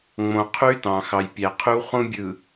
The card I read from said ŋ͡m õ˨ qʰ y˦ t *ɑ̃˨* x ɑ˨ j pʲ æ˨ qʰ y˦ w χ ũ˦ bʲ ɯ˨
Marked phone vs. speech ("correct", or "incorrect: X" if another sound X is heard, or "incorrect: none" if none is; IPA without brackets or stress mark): correct